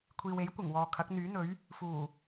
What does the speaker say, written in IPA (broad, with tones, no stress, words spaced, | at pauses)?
kʷʰiː˨we˨˥j kʷɪ˨˩ŋwɔː˨kʰɐ˨˥k̚ n̪yː˨˥n̪ɵ˨˥ɥ | fuː˨˩